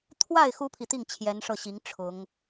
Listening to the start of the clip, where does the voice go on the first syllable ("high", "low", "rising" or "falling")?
falling